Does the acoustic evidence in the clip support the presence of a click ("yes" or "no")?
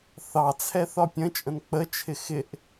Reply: no